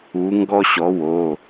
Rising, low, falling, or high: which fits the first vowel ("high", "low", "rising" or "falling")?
rising